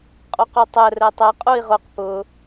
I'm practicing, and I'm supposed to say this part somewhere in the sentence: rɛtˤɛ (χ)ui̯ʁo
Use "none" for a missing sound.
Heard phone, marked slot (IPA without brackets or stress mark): qʼ